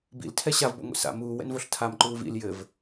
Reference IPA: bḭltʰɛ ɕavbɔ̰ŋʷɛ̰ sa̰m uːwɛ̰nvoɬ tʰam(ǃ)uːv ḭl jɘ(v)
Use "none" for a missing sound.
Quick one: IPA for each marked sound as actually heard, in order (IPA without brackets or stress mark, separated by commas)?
ǃ, v